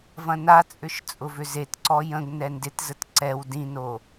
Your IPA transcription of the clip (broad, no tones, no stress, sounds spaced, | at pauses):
v ɐ̃ n a t͡sʼ ʏ ʃ t͡sʼ ʊ v ʏ z e t ǀ ɔ j ə̃ ɡ n ɛ n d ɪ t z ə t ǀ ɛ w d ĩ n o